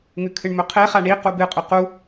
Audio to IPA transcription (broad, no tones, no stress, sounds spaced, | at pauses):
ŋ ʉ kʰ ɨ ɳ m ɵ qʰ e χ a ɳ i q u b ɨ qʼ ʉ q u